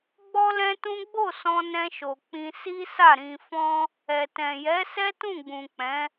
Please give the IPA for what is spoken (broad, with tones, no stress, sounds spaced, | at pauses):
ɡ͡b ɔ˦ l ɛ̃˦ t ũ˦ ɡ͡b o˦˨ s ɔ̃˧ n ɛ̃˧ ʃ o˨ k͡p ĩ˧ s i˦ s a˦˨ ɾ ĩ˧ f ɔ̃˦ | ɛ˨ t ɛ̃˨ j ɛ˨˦ s ɛ˦ t ũ˦˨ ɡ͡b ũ˨ k͡p ɛ̃˨˦